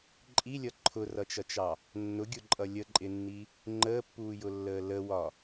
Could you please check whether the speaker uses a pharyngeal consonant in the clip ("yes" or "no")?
no